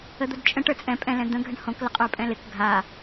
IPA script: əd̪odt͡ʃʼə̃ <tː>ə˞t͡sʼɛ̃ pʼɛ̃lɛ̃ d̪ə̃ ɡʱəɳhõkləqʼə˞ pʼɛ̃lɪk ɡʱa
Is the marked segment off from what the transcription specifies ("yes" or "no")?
yes